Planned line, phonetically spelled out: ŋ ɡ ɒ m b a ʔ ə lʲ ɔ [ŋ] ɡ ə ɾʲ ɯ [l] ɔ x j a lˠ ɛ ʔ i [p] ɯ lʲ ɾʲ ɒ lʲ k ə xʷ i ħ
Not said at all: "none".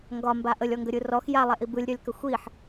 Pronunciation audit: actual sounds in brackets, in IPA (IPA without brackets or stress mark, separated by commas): ŋ, r, b